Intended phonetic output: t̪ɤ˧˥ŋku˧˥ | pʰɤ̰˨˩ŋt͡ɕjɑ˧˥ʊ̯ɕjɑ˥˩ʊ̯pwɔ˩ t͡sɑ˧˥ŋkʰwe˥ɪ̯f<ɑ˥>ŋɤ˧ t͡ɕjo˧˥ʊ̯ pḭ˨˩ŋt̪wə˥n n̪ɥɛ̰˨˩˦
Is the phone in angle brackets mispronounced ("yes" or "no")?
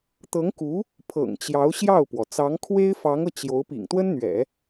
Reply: yes